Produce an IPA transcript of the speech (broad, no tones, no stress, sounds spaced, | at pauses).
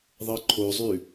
ðˤ ɤ ǃʰ o zˤ ʉ